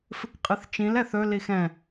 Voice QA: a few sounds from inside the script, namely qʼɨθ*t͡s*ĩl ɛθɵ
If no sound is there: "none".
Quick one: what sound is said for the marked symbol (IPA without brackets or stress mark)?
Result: t͡ʃ